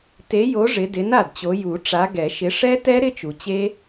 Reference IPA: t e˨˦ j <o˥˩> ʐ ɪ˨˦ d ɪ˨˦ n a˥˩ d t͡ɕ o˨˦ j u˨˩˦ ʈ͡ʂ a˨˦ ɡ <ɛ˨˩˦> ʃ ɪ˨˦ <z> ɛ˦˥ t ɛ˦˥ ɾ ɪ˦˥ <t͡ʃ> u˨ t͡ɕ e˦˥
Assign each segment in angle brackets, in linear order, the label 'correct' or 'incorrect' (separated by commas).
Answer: incorrect, correct, incorrect, correct